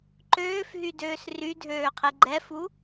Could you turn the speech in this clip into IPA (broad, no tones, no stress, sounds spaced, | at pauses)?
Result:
ǃ øː f ɦ y d øː s r y dʱ øː qʰ e ɡ͡ǃ ɛ f u